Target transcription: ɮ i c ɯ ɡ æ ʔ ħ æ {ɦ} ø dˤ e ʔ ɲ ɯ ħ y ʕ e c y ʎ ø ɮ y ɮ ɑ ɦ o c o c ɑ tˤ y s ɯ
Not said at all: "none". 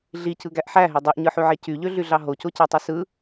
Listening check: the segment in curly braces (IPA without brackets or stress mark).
ɦ